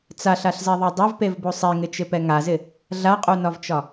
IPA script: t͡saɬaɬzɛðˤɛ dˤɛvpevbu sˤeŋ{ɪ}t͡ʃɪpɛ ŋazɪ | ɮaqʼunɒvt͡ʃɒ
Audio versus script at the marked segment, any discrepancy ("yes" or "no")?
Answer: no